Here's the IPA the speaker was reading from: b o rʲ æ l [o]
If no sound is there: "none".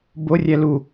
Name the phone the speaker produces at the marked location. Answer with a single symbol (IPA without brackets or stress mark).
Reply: u